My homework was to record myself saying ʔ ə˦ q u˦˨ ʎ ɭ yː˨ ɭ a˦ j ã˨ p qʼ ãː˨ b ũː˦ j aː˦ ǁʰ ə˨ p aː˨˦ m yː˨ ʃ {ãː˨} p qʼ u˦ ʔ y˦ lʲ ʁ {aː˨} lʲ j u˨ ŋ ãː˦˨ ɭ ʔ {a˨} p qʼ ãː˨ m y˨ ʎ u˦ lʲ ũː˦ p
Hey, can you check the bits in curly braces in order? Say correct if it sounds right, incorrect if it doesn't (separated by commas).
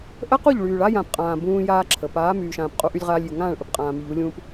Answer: correct, incorrect, incorrect